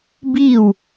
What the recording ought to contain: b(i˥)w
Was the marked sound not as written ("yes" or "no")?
yes